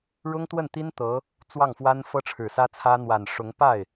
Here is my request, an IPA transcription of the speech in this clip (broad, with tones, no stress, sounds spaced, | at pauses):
ɻ ʊ˥ ŋ t̪ w ə˥˩ n t̪ i˥ n t̪ ɤ˧˥ | t͡s w ɑ˥˩ ŋ f w a˥ n f ɤ˥ ʈ͡ʂʰ ɻ̩˨˩ s ä˥ t͡sʰ ä˥ n̪ w a˨˩ n ʂ ʊ˧˥ ŋ p a˥˩ ɪ̯